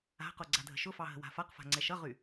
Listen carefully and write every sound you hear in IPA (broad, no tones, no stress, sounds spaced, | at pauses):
a̤ q o ɡ͡ǀ a dʱ ə̤ ʃ ʊ f ɑ ɦ ə̤ w a̤ f a q f a̤ ŋ͡ǀ ɛ ʃ ʌ ʁ y